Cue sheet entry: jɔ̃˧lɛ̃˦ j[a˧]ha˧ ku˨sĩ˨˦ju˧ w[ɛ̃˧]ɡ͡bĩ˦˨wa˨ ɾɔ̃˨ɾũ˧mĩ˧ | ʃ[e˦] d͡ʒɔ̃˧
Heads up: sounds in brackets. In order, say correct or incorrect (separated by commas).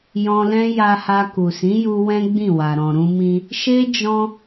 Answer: correct, incorrect, correct